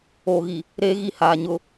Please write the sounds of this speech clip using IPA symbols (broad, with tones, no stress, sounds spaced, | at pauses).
oː˨ ɣ i˨ | ɾ eː˦ ɣ i˦˨ h aː˨ ɲ ʊ˦